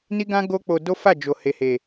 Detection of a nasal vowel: present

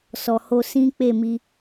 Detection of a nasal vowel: present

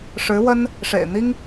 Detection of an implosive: absent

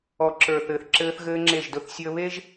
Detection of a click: present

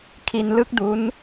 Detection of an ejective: absent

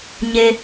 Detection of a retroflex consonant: absent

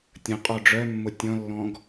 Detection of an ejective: present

